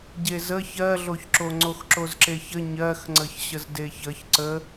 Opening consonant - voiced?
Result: yes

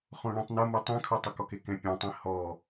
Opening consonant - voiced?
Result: no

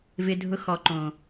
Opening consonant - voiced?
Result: yes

